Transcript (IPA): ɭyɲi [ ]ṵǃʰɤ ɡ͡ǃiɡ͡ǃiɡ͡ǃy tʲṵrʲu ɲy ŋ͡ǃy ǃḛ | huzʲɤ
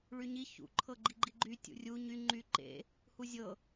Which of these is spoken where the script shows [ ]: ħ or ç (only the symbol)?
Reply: ç